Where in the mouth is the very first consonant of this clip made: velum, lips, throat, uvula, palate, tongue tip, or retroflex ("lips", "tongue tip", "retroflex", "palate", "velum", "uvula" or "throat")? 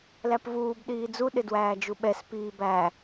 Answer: tongue tip